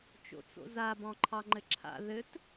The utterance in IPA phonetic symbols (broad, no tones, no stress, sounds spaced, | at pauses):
t͡ʃ o̰ t͡s o̰ z a b ɔ̃ ǃʰ ɑ ŋ͡ǃ ɘ ǁʰ a̰ ð ɘ t